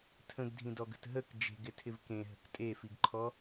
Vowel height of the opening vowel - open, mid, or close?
mid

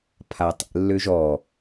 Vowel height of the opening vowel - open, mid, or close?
open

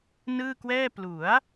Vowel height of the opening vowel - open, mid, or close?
close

